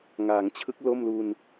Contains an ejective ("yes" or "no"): no